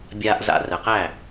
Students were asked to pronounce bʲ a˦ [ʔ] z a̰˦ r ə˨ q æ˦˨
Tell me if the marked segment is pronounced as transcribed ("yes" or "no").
yes